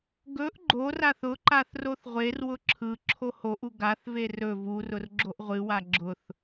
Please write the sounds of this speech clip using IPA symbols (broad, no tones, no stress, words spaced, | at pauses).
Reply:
ɡɵʔ ɡ͡ǃoraθ ʊǃaθ roθʁʷerwʊ ǁʰɯ ǁʰohoʔu ɡaθve rɵ vurʊr ɡ͡ǁoʔʁʷɨwa ɡ͡ǁʊθ